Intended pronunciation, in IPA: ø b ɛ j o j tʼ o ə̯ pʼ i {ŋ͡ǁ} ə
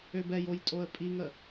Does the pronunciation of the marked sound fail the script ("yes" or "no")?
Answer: yes